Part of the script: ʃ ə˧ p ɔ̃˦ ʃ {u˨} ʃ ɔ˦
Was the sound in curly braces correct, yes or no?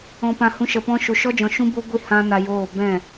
yes